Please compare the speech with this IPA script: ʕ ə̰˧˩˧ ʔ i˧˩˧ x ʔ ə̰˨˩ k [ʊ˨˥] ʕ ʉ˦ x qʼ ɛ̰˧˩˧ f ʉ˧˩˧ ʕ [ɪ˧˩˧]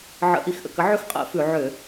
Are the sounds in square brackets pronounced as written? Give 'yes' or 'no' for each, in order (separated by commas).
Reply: no, no